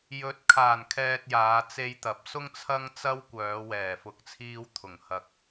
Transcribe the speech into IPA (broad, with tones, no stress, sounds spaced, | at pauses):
j ɵ˨˥ t̚ kʰ aː˨˩ n kʰ ɛː˨ t̚ j aː˨˧ t͡s e˧ j t̪ ɐ˨˥ p̚ s ʊ˥ ŋ t͡sʰ ɐ˥ ŋ t͡s ɐ˥ w kʷ œː˨˧ w ɛː˨˩ f ʊ˨˥ k̚ t͡sʰ iː˧ w t̪ʰ ʊ˨˩ ŋ h ɐ˨ k̚